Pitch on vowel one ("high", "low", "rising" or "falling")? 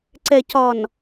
low